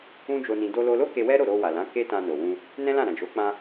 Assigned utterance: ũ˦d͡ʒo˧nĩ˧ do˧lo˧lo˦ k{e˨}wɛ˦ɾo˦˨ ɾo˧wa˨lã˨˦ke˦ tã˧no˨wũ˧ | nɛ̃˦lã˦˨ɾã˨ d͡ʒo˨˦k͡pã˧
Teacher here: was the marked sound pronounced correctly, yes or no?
no